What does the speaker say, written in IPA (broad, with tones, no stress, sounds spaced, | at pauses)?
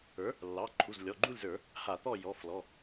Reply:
ə˞˩˥ | lː ɑ˩˧˩ ǃʰ u˩˧˩ z lʲ ɔ˩˧˩ ɡ͡ǃ u˥˨ lʲ z ə˞˧˩˧ | h a˧˩˧ t̪ ɔ˥˨ j ɔ˩˧˩ f l ɔ˩˧˩